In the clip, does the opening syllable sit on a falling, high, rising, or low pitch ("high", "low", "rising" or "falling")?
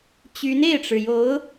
rising